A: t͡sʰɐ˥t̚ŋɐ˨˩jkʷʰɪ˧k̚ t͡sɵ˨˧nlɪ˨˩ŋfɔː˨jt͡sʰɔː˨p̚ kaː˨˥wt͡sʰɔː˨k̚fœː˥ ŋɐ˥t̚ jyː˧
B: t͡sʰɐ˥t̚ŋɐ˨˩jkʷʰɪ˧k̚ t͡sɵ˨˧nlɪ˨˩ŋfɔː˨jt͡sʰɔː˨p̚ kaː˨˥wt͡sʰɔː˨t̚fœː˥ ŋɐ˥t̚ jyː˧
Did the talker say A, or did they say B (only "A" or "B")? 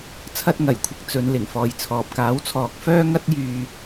A